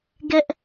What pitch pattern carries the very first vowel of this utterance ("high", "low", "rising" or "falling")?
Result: high